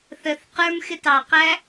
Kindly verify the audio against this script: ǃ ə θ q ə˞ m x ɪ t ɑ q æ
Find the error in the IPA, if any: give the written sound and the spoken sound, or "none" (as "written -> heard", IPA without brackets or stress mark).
ǃ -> θ